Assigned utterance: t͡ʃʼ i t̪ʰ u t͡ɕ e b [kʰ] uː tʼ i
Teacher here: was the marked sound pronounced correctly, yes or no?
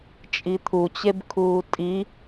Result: yes